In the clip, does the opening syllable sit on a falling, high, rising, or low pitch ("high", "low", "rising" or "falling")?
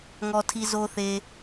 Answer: low